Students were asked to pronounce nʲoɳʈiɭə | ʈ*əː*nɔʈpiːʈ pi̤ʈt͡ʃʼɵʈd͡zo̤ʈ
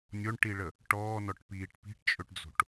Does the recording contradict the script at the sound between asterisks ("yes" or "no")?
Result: yes